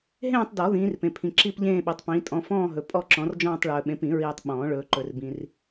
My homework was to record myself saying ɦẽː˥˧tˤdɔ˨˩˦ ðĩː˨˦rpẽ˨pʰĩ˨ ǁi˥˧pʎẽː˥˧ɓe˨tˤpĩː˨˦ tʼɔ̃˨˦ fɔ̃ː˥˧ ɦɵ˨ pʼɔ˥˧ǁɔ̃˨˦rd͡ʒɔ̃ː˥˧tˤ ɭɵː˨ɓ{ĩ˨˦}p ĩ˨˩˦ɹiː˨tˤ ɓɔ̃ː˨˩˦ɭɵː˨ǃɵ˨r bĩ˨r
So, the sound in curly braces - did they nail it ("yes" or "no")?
no